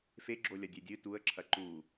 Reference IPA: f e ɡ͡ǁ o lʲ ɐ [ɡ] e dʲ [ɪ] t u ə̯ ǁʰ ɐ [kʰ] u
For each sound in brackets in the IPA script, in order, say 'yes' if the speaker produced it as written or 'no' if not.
no, no, no

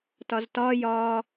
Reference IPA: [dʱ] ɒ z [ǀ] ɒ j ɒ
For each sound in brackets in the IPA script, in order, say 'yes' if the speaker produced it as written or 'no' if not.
no, no

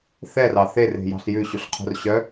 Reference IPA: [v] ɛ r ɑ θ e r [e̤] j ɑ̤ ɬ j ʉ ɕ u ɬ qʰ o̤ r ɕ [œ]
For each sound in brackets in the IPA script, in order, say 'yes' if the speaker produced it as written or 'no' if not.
no, yes, yes

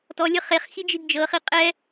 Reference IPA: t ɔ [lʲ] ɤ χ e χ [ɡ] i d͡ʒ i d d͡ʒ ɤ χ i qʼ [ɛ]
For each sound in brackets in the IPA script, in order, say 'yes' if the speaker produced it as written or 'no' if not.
yes, no, yes

